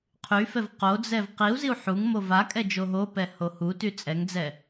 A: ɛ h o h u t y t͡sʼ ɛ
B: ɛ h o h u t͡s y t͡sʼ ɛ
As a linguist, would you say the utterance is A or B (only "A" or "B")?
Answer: A